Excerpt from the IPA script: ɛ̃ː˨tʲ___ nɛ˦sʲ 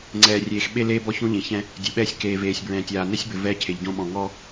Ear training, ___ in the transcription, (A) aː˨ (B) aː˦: A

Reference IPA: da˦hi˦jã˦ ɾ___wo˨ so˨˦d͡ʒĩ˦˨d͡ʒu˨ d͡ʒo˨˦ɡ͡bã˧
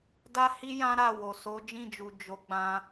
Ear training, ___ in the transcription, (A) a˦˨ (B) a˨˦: A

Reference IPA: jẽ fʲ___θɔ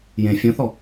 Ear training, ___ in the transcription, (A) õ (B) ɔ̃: A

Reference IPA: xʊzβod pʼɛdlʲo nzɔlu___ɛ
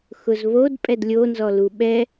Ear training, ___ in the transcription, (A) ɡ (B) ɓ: B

